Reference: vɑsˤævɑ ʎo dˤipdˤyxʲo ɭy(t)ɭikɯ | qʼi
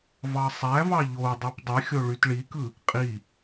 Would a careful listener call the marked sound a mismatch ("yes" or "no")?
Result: no